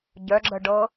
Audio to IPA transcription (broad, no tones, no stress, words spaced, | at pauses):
ɟœɡ͡ǁəɖɤ